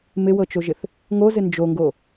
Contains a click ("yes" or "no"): no